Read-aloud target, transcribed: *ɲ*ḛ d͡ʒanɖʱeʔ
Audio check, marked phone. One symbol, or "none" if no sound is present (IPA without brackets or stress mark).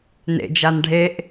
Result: n